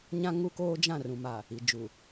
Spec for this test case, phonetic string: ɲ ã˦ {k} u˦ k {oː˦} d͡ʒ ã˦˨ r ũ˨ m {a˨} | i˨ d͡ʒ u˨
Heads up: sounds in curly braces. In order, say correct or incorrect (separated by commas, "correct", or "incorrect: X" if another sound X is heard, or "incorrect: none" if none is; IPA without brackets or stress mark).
incorrect: ŋ, correct, correct